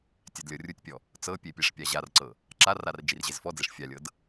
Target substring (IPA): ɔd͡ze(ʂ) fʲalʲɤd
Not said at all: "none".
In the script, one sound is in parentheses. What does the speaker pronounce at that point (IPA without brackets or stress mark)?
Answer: ʂ